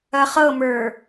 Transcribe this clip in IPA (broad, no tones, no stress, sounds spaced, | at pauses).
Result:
ɐ χ ɤ m ə˞